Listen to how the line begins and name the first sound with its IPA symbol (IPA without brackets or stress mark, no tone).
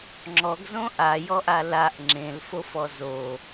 ŋ͡ǁ